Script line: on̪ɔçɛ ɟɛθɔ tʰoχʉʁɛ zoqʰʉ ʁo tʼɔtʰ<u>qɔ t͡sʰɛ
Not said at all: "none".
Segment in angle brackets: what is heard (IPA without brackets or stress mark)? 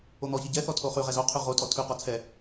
ʉ